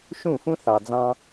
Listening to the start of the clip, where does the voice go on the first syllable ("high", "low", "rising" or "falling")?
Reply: falling